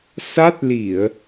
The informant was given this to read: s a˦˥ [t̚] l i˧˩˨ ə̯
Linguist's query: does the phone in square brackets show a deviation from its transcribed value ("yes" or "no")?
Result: no